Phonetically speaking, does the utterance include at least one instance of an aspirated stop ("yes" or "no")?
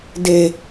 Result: no